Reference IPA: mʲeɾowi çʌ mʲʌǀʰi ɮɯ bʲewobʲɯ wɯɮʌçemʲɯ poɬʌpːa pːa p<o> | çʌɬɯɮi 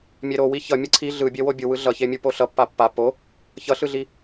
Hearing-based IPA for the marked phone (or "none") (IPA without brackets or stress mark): o